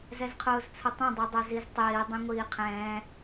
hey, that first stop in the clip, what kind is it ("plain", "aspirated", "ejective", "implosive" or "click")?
aspirated